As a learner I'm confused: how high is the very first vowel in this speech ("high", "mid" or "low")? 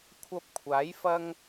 low